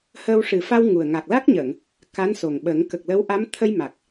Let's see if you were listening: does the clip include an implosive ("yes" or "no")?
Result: yes